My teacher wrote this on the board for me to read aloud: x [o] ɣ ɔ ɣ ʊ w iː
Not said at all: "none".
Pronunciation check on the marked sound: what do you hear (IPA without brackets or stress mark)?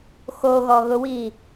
o